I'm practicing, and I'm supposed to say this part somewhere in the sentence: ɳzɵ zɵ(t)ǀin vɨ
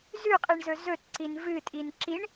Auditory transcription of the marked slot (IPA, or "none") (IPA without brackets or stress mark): t